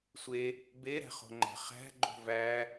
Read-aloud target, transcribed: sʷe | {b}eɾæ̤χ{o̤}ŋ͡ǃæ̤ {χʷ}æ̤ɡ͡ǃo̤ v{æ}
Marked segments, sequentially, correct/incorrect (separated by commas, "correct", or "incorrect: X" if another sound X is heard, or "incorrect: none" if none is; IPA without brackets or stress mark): correct, correct, incorrect: χ, correct